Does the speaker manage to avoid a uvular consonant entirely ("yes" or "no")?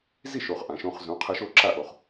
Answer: no